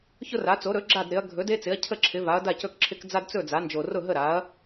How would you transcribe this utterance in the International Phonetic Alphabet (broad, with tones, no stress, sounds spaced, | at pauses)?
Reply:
ç ʊ˦ r a˩˥ t͡s o˩˥ ɾ ɵ˩˥ ɡ͡ǁ a˥˩ d ɾ ɪ˩˥ ɐ̯ ɡʱ ɵ˩˥ d e˦ t͡s ɪ˩˥ ɐ̯ cʰ ə˥˩ ǁʰ ɪ˩˥ v a˩˥ ɐ̯ d a˥˩ c ɵ˥˩ k ǁʰ ɪ˦ k d͡z a˦ d t͡s ɵ˥˩ d͡z a˩˥ n d͡ʒ o˨˩ r ʊ˥˩ ɦ ə˥˩ ɾ a˩˥ ɐ̯